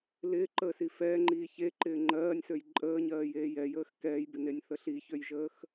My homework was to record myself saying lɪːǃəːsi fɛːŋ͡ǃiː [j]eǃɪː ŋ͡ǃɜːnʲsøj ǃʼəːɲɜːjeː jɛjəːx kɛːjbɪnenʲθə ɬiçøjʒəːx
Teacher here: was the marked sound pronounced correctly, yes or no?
no